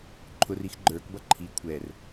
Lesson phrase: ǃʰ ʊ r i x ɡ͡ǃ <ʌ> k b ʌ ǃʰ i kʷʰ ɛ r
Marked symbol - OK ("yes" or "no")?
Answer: no